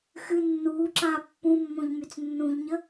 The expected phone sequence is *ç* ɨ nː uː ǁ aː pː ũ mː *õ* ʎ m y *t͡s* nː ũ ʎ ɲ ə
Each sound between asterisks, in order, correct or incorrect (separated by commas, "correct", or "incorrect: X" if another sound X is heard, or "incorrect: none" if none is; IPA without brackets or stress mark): incorrect: x, correct, correct